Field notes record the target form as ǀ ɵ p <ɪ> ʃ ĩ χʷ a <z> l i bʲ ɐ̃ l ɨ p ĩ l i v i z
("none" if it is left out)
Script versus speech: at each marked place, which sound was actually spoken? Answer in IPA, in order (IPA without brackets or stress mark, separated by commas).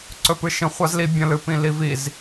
ɨ, z